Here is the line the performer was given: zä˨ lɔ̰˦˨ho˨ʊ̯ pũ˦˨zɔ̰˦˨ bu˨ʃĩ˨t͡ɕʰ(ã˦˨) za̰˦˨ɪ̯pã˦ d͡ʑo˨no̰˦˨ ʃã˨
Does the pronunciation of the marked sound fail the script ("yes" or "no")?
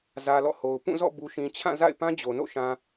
no